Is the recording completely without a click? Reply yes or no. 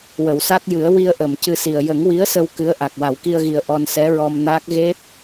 yes